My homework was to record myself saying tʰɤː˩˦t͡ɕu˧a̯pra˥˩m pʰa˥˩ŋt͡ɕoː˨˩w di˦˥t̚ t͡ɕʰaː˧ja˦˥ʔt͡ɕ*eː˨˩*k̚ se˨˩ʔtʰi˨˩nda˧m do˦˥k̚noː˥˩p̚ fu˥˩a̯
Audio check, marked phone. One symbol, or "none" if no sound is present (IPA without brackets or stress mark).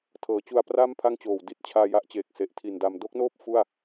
eː˨˩